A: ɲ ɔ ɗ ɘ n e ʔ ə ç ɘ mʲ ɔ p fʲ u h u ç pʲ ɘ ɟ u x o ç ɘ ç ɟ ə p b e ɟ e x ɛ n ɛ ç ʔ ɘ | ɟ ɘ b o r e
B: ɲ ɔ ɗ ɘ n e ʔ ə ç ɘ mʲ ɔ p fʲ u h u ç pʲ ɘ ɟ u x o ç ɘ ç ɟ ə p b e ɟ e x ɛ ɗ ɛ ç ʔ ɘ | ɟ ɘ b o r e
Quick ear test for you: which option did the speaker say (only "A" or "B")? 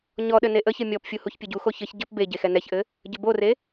A